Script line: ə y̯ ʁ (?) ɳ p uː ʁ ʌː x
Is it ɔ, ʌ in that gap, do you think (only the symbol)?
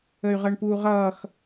ʌ